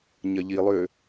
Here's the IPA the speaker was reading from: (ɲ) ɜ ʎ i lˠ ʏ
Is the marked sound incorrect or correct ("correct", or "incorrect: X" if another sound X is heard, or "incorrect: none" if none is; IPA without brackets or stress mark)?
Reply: correct